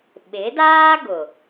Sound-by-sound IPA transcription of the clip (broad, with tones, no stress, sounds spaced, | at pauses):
ɓ ɪ˨˦ d aː˦ ɡ ʊ˨